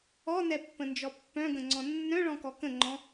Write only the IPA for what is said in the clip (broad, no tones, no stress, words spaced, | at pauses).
ɔnɛpːə̃nd͡ʒɔ pːœ̃ɡə̃ŋ͡ǀɔ̃ nːœ̃ɭɔ̃kɔ kə̃ŋ͡ǃɔ̃